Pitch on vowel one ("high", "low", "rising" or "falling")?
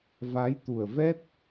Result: rising